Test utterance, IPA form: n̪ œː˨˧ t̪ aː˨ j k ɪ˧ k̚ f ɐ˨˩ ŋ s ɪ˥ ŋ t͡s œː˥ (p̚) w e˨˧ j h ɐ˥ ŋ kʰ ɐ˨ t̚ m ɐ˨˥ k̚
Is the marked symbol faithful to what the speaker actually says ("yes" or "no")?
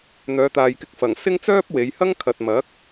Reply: yes